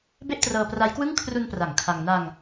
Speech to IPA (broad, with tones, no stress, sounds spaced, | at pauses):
b e˥˩ ʔ t r ɤː˧ p r a˦˥ j k w ɯ˥˩ ŋ kʰ r u˧ n p r a˩˦ ŋ kʰ a˧ ŋ n a˧ ŋ